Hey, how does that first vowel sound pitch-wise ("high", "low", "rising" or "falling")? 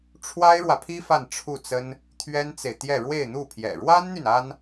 high